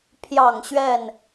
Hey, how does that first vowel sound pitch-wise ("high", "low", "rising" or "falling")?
low